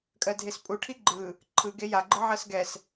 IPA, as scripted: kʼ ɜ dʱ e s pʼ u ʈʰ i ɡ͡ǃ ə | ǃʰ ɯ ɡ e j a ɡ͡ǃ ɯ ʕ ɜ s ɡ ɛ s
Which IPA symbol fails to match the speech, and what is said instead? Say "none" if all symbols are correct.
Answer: ə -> ɯ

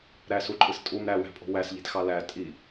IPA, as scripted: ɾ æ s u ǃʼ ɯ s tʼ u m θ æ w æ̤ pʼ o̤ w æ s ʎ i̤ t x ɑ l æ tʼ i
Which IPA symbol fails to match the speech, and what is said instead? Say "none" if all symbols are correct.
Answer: θ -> ɾ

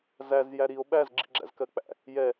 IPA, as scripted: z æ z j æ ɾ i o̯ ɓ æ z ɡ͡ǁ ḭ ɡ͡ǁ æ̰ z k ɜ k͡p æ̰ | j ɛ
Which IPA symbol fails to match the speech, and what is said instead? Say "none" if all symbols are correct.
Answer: none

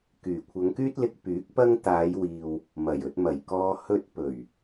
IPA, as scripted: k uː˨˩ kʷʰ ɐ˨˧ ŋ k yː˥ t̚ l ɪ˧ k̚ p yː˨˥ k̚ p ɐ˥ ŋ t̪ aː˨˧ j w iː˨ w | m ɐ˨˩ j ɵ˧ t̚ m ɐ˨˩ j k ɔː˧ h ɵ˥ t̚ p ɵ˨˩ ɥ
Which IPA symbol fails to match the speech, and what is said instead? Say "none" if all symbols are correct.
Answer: uː˨˩ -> yː˨˩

